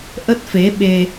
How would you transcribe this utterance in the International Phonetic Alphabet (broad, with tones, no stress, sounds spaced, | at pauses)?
ʔ ə˦˥ t̚ f e˨˦ ɓ e˧